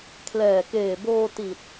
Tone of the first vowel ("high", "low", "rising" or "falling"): low